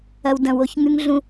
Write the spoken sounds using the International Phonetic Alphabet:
ɐ˧ w d ɐ̃˨ w o˧ ç ŋ ʉ˦ ŋ ɮ ũ˧

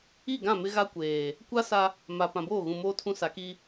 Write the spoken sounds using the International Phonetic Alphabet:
i˦˨ ɡ ã˦˨ m ɪ˦ ɣ a˦ kʷ eː˨ | kʷ a˦ s a˦ | m a˨ p ã˨ b oː˦˨ ɣ ũ˨ m oː˦ tʰ ũ˦ s a˨˦ k i˦

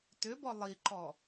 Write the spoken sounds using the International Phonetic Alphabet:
t ʏ b ɔ lˠ i ǃ ɔ

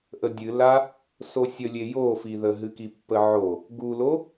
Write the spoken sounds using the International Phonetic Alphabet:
ʔ ə dʲ ɨ l a | s o sʲ ə lʲ e j o f i ð ə ɦ ɨ k i pː ə ʕ o | ɡ u l o

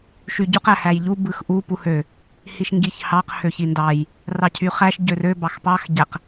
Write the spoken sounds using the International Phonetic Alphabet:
ʃ y ɟ u q æ h æ j ʎ u b ɯ x ʔ u p u h ø | h i ʃ ŋ ɡ i ç h ɑ q h ø ç i n d ɑ j | r ɑ cʰ y χ æ ʃ ɟ ø r ø b ɑ x p ɑ x ɟ æ q

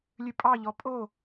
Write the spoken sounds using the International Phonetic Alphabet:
lʲ ʉ pʼ ɑ ʎ ɔ pʼ o

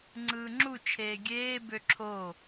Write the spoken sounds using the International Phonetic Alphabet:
ŋ͡ǀ ɯː ŋ͡ǁ u t͡ʃʰ eː ɡʲ eː b ø ǁʰ o

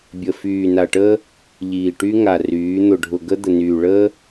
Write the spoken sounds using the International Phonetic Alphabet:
bʲ ə˨ f yː˨ n a˨ ʈ əː˦ | ʎ iː˨ ʈ y˦ ŋ a˨ r yː˨˦ n̪ ʊ˨ ɖʱ ʊ˨ ɡ ə˦ d̪ ə˨ n yː˨ ɭ əː˦

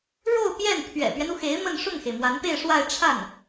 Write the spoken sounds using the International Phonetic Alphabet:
ɻ o˥˧ ʊ̯ p j ɛ˥˩ n pʰ ɥ ɛ̰˨˩ p ɥ ɛ˦ n u˩ x e˧˥ ɪ̯ m ə˥˧ n ʂ ʊ˥˩ ŋ x e˩ ɪ̯ m w a˧˥ n p e˥˧ ɪ̯ ʂ w a˥˧ ɪ̯ ʈ͡ʂʰ a˥˩ n

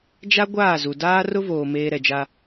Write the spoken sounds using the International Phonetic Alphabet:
d͡ʒ a˦ ɡʷ aː˦˨ z u˨ d aː˦ r ʊ˦ v oː˨ m eː˨ ɾ ɛ˨ d͡ʒ a˦

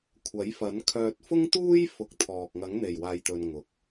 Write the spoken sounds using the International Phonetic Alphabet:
kʷʰ ɐ˨˥ j f ɐ˨˥ n kʰ œː˧ t̚ f ʊ˥ ŋ t̪ uː˥ j f ʊ˨˥ k̚ t̪ʰ ɔː˨ k̚ ŋ ɐ˨˥ ŋ n̪ e˨˩ j w aː˨ j t̪ ɵ˨ n ŋ ʊ˨ k̚

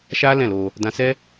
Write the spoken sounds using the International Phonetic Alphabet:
ʃ a˦ l ɛ̃˦˨ l o˧ | d ã˧ s ɛ˦

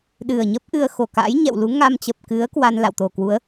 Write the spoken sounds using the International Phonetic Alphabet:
ɗ ɨ˨˩ ə̯ ɲ ə˦˥ p̚ ʔ ɨ˧ ə̯ x o˧˩ k a̰˧˥ j ɲ ɛ̰˧˨ w l u˨˦ ŋ a˧ m t͡ɕ ə˨˩ p̚ k ɨ˨˦ ə̯ k w a˧ n l a̰˧˨ w t̪ o˨˩ k w u˨˦ ə̯

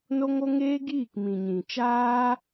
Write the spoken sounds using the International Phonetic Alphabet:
n o˦ ŋ o˦ ŋ eː˦ ɡ iː˦˨ k m ĩ˨ ɲ ĩ˨ t͡ʃ aː˦

